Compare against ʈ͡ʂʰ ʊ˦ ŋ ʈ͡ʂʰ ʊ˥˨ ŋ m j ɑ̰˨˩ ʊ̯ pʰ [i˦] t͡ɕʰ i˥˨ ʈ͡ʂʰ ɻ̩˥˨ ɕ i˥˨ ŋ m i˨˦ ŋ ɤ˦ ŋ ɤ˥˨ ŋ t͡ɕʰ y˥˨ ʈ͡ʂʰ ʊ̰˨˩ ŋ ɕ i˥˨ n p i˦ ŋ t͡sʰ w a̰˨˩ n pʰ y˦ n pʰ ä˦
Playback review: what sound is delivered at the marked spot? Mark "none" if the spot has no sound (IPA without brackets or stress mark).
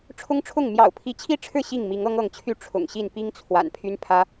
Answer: i˨˦